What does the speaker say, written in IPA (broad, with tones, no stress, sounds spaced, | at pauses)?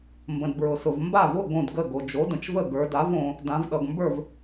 m b ə̃˩ d b ɹ ʊ˩ s ʊ˩ v m b a˥˩ v ʊ˥˩ ɡ õ˥˩ d ɡ ə˥˩ ɡ o˩ d͡ʒ o˩˥ d ə̃˩ t͡ʃ v ə˥˩ ɡ ə˞˩˧ d a˩˥ v õ˩˧ | d ã˩˧ v ɗ ʌ˩ ɡ m b ə˞˥˩ v